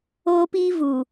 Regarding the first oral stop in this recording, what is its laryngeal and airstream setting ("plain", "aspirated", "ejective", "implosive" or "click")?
plain